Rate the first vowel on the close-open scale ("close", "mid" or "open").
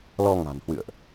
mid